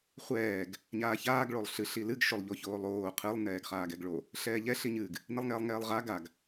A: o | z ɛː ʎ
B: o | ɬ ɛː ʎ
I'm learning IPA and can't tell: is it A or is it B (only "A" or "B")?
B